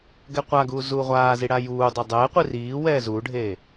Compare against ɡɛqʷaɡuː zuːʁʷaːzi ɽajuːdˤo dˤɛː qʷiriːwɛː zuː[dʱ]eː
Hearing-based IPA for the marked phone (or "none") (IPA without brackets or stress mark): ɖʱ